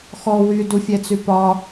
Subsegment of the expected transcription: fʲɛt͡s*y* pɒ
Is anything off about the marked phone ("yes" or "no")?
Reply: no